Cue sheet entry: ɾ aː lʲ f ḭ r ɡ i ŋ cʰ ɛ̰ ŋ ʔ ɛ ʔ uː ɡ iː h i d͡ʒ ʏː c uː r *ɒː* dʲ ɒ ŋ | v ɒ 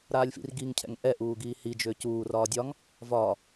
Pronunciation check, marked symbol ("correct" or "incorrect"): correct